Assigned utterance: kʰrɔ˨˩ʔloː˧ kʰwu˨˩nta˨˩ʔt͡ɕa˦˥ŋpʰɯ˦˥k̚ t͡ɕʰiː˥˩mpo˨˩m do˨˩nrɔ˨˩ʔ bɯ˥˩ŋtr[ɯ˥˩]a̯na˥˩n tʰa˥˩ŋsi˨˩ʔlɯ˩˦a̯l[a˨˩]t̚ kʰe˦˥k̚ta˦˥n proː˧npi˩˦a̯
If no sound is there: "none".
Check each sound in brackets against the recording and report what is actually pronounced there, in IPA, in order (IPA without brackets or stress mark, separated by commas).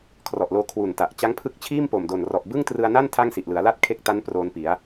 ɯ˧, a˥˩